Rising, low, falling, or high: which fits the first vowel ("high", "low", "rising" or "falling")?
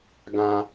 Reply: low